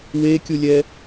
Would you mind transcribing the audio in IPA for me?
w e kʲ u lʲ ɛ

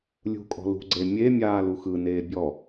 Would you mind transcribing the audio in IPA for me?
lʲ ṳ kʼ ɔ̤ l ṳ ɡ͡ǀ e mʲ e mʲ aː l u x ɯ n eː bʲ ɔ

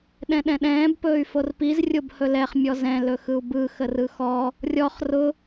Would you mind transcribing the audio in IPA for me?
ɗ ɛ̃ ɗ ɛ̃ ɗ ɛ̃ː b p ɵː y̯ f o r p i z rʲ o b h ɵ l ɛ χ mʲ ɔ z ɛ̃ l ɵ x ɯ u̯ b ɯ x ə r ɯ x ɔ | rʲ ɔ χ r ʊ

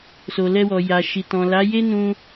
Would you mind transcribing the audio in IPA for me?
s o˨ l ɛ˧ w ɔ˨ j a˨ ʃ i˨ t ɔ̃˨ l a˨˦ j e˦ n ũ˧

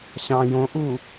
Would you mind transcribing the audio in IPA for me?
ɕ ɑ̃ j õ ʔ u

